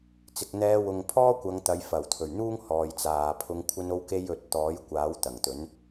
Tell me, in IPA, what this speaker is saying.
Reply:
t͡s ɪ˨ k̚ n̪ ɛː˧ w ʊ˨ ŋ pʰ ɔː˥ kʷ ɐ˨˧ ŋ t̪ ɐ˨˧ j f ɐ˨˩ w t̪ʰ ɵ˨˩ ɥ n̪ uː˥ ŋ h ɔː˨ j t͡s aː˨ pʰ ʊ˧ ŋ kʷʰ ɐ˥ n o˥ w k e˥ j ɵ˨˥ t̚ t̪ ɔː˨˥ j kʷ aː˨˥ w t̪ ɐ˨˩ ŋ t̪ ɵ˨˥ n

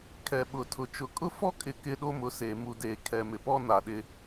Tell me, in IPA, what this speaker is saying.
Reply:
kʰ ɛ˨ ɓ ʊ˨ tʰ ʊ˨ t͡ʃ ʊ˨ kʼ ʊ˦ f ɔ˦ kʼ ɪ˨ k ɪ˦ ɗ o˦ m ʊ˨˦ s eː˨ m u˨ d eː˨ kʰ ɛ˨ m ɪ˨ p ɔ˦ n a˨ ɗ ɪ˦

